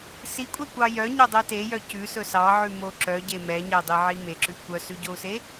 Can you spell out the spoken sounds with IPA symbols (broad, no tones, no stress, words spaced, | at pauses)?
sikʷʼɛkʷɑ jœɲœdˤe tejœ cʉsɵ sɑʕʉmo ǁœɟe mɛɲɛdˤeʕi meǁʉ kʷœsʉɟou̯se